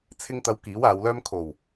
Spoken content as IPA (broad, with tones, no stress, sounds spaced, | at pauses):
t͡sʰ ɪ˧ ŋ t̪ ɐ˨˧ w k iː˨˥ w aː˨˧ w l œː˥ m kʰ o˨˩ w